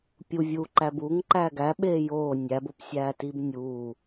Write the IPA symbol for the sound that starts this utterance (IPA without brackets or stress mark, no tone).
pʲ